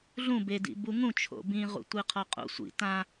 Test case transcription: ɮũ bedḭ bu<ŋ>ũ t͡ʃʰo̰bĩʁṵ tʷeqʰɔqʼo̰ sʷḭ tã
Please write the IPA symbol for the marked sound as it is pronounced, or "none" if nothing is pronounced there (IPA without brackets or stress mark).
ŋ